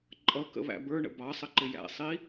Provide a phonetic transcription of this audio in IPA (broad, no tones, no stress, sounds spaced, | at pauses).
ǃʼ ʌ k ə̰ β æ̰ b ə˞ ɳ ə̰ b ɑ sˤ ə ǃ ɪ j æ̰ sˤ i